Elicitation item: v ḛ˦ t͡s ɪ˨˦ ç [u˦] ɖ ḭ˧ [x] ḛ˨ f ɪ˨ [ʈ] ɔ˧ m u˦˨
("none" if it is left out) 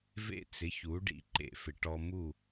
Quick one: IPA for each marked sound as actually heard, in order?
u˨˦, ǃ, ʈ

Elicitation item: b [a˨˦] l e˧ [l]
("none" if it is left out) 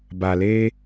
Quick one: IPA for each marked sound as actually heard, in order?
a˨, none

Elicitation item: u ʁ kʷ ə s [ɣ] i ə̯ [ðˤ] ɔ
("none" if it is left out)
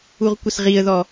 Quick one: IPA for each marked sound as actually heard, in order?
ʁ, ð

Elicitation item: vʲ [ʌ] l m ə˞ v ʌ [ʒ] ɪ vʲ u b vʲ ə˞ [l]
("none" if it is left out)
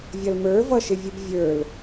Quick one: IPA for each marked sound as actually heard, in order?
ʌ, ʃ, l

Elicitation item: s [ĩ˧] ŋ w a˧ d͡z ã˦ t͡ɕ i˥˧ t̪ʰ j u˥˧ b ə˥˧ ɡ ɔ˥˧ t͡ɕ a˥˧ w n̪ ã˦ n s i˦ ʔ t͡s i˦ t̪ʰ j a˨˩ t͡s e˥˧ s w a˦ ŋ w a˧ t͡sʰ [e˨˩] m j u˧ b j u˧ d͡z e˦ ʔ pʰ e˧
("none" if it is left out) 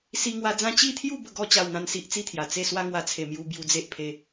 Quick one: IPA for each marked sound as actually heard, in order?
i˧, e˨˩

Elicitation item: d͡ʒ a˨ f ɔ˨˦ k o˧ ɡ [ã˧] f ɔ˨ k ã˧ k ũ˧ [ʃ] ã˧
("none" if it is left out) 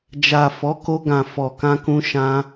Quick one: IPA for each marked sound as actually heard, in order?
ã˨, ʃ

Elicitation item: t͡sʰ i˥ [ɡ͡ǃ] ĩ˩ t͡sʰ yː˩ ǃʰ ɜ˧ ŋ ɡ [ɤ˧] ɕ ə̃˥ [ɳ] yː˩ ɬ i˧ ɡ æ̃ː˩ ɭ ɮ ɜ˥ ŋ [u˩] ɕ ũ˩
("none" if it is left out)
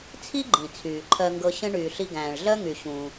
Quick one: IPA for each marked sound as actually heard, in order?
ɡ͡ǃ, ɤ˧, ɳ, y˩

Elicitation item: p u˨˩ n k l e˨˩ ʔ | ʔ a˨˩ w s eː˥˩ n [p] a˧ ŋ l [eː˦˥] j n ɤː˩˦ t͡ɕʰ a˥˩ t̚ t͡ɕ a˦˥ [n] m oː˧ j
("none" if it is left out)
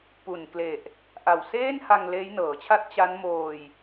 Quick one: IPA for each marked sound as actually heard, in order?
h, eː˦˥, n

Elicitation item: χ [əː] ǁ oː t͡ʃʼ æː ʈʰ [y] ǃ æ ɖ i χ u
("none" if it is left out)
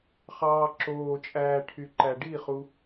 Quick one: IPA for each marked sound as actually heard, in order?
ɑː, y

